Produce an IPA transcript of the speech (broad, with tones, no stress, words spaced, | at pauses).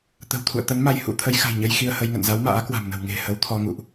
t̪ə̤˨˩wt̪ʰṵ˧˨ə̯t̪ə˨˦nma˧j hṵ˧˥t̪ʰə˨˦jxa̤˨˩jɲə˧j xi˧ə̯hə˧jŋə̰˧˨n za˨˦wma̰ː˧˥kwa̤˨˩mnə̤˨˩w ŋe̤˨˩hə˨˦wt̪ʰɔ˧ ŋṵ˧˨ʔ